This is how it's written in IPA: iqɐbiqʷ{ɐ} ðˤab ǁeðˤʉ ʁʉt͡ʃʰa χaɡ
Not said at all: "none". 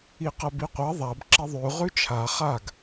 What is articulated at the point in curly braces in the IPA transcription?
ɐ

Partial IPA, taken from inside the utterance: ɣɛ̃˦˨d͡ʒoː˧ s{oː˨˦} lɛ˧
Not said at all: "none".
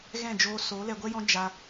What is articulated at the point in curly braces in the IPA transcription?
oː˨˦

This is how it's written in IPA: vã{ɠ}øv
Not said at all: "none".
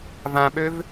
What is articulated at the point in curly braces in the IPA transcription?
ɓ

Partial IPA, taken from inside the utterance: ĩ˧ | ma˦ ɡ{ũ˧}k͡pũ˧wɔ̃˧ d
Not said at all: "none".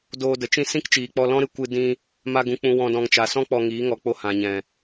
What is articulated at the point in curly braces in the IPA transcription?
ũ˧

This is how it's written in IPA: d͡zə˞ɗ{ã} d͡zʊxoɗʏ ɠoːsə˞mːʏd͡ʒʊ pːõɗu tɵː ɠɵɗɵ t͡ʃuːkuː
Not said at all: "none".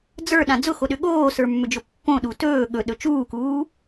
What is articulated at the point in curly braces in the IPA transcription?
ã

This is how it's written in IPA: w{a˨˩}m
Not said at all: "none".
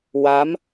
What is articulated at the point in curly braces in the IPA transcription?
a˦˥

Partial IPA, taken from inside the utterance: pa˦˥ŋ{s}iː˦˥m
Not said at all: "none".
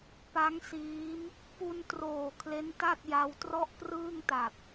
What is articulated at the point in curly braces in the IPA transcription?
s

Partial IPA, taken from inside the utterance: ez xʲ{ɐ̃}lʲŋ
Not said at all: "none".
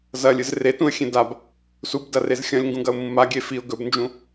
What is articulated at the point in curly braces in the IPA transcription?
ɐ̃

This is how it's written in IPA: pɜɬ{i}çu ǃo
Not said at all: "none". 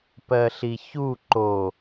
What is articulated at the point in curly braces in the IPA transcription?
i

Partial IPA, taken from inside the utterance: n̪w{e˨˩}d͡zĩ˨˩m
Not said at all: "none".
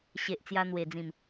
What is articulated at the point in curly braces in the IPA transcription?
e˨˩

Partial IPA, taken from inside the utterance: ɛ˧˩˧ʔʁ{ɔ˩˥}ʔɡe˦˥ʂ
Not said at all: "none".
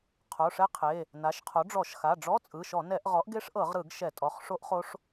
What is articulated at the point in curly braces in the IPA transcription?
ɔ˩˥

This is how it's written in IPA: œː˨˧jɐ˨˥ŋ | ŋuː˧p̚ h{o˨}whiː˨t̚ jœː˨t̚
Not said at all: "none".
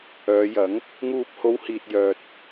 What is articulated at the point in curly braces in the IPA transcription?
o˨˧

